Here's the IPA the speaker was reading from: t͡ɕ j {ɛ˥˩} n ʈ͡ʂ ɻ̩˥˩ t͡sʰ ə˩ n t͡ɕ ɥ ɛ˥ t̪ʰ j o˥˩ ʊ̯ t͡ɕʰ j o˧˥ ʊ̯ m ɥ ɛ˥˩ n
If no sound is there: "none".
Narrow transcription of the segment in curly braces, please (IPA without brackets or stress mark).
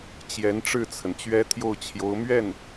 ɛ˧˥